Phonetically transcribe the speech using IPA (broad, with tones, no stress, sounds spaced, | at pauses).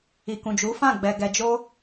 i˨ k ũ˨ d͡ʒ u˨˦ f ã˦˨ ɡ͡b ɛ˨ ɡ ɛ˨ d͡ʒ o˧